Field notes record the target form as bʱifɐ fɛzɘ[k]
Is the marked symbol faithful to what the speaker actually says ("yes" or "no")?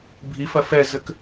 yes